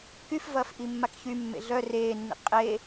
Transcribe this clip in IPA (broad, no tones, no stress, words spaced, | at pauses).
kyfvɐːf ʔimːakçymːḛ ɮœ reːnːḭ qʼe